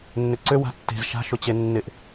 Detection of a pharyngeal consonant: absent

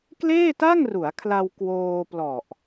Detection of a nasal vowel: absent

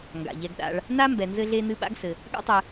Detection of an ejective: absent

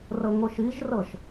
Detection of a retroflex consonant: absent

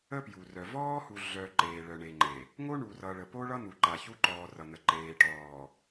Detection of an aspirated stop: absent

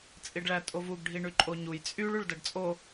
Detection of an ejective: present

